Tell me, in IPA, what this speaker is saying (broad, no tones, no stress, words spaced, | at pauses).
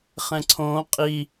χɛ̃ǀʰõː qʼi